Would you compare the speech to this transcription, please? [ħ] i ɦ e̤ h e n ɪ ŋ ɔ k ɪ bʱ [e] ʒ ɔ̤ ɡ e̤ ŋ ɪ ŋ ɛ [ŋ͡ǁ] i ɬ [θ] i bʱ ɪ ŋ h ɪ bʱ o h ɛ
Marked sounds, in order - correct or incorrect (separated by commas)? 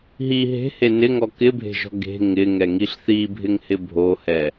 incorrect, incorrect, incorrect, correct